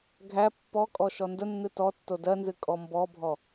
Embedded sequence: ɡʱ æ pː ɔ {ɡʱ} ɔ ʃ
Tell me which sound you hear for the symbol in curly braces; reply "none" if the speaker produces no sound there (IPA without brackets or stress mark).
kʼ